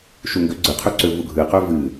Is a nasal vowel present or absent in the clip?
absent